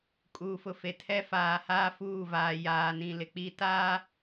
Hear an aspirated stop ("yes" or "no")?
yes